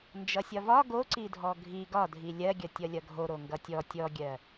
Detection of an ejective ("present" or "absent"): absent